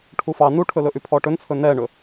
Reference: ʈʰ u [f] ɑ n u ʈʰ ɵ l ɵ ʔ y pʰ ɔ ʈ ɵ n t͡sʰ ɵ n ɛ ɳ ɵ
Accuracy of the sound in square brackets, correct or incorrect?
correct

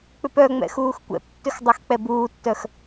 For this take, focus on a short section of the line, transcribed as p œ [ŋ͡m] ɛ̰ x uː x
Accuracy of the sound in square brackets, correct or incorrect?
correct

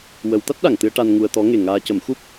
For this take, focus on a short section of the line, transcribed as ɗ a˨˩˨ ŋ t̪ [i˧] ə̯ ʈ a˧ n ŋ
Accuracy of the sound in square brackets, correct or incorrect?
incorrect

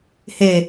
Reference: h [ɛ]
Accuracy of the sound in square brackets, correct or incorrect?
incorrect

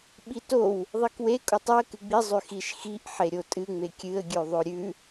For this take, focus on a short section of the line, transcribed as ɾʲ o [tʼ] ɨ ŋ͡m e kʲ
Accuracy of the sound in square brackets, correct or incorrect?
correct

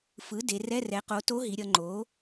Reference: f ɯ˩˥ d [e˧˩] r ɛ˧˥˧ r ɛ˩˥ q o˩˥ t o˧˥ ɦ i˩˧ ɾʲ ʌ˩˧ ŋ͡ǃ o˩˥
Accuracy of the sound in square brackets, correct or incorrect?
incorrect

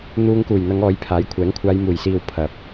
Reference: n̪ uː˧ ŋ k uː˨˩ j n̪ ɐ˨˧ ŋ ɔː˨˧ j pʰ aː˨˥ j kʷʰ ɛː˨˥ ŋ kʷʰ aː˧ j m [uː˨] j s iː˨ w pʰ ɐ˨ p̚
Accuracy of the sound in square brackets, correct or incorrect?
incorrect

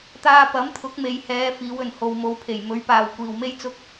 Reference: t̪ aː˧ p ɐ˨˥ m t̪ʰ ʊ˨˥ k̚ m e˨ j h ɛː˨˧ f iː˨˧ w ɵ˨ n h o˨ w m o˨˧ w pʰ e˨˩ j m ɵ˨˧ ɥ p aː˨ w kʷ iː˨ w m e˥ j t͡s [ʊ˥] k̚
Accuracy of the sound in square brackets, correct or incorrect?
correct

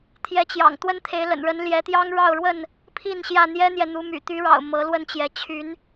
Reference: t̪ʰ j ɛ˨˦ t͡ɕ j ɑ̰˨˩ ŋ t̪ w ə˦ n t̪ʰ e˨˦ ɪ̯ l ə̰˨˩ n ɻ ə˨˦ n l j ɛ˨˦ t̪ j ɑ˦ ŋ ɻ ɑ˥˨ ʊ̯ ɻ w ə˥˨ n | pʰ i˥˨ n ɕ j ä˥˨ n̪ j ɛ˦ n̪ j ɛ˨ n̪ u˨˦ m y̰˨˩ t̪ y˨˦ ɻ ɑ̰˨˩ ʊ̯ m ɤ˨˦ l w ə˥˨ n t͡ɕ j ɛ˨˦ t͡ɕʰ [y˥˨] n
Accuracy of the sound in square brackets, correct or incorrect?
incorrect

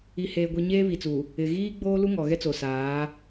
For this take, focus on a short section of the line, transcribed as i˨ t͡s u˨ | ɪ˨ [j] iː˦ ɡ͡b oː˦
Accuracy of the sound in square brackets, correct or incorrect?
incorrect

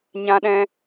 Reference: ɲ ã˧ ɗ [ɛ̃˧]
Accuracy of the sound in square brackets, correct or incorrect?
correct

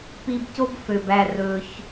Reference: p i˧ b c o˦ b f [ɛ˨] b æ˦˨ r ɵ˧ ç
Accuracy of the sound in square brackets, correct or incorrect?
incorrect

